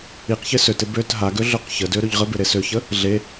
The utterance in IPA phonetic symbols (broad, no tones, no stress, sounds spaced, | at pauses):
i q ç ɪ s ø t ɪ b ø t ɦ a ɡ ø ɮ ø q ç ə d ø ɾ ɵ ʎ ʁ ə b ɪ ɾ e s ø ç ə | ɮ e